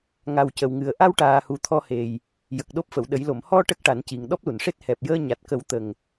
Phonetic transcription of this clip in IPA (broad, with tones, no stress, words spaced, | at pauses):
ŋa˨˩w cə˨˩wŋɨ˨˩ə̯ ʔa˧w ʈaː˨˩hu˨˩ t̪ʰɔ˧he˨˩j | jə˨˩k̚ɗo˦˥p̚fə˨˩˨wɗə˨˩˦j lo˨˩˨mhɔ˧ ʈə˦˥k̚ʈa˨˩˦nci˨˩ŋ ɗɔ˦˥p̚lu˨˩˨nʂe˦˥t̚ hɛ˨˩p̚jəː˧ ɲa˨˩t̚kə˨˩˦w t̪ə˨˩ŋ